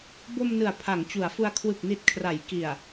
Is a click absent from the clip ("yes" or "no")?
yes